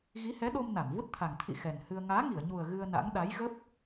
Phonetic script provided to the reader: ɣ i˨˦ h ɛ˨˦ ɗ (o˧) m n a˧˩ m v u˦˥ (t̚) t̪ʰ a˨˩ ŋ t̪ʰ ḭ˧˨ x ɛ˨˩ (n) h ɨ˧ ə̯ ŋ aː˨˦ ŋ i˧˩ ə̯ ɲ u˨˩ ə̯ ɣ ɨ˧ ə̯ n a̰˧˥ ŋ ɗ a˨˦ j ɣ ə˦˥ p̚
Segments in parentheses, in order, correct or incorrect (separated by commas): correct, correct, correct